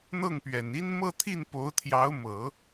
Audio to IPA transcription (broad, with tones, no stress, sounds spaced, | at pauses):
n̪ ɤ˥˩ ŋ p ɥ ɛ˨˩ n i˥ n m ɤ˥˧ t̪ʰ i˥˩ n p o˧˥ ʊ̯ t̪ʰ j ɑ˧˥ ʊ̯ m ɤ˨˩˦